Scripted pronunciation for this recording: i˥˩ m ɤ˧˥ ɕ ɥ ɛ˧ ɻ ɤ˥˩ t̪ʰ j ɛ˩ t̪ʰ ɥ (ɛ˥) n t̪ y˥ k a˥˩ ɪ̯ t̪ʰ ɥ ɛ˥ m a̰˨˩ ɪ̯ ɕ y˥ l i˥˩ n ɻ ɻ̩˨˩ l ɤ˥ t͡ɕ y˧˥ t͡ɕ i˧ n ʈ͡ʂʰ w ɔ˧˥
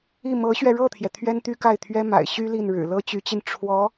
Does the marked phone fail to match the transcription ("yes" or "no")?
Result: no